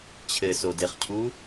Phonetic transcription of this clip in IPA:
t͡ɕʰɘsodeχcʰu

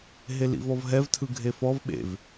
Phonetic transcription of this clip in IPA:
ɦelḭvɔvɦɛv tʰɯɡʱefɔv ɓḛv

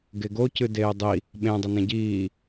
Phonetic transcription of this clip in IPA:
ɡeɡo cɨdeːdˤi | ɓẽ dˤɐnẽɟiː

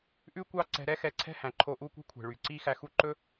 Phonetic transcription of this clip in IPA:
ʔʉ˦kʷɑ˦ǀɛ̤˧ ɾɛ˦xɛ˨˦ǀʰɛ̤˦hæ̃˨ ǃʰo˧ʔu˦˨kʷi̤˦kʷʰe̤˨ ɭy˨ǀi˦ xæ˧xu˦ ǃɵ˦

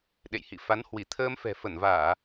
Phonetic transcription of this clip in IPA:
ɗḛ˧˨jhḭ˧˨ fa˨˦nhwi˧˩ t̪ʰəː˧m fɛ̤˨˩fə˧˩nvaː˧˩˨

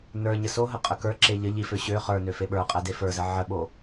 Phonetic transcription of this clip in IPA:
nə˞ ɲəsoɦə qʼəkə˞ǁe ʎə ʎifø ɕø χə˞nø feɓə˞qʼɛ defə˞zə ʕəɓo

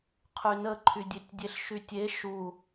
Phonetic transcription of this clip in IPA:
qʰynəǃʰydʲetʲ dʲeɬʃytʲe ʃu

